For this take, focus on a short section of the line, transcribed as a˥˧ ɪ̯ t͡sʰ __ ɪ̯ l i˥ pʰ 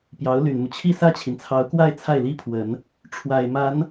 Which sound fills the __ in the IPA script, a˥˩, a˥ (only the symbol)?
a˥˩